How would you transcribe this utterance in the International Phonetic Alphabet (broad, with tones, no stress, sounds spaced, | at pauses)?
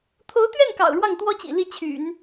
t̪ʰ o˧˥ ʊ̯ t̪ ɥ ɛ˥˩ n k ɑ̰˨˩ ʊ̯ ɻ w ɑ˥˩ ŋ t̪ w ɔ˥ t͡ɕ ḭ˨˩ l i˥˩ t͡ɕʰ y̰˨˩˦ n